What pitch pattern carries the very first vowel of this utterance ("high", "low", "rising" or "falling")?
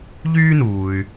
high